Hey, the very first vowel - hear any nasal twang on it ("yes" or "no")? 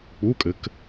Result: no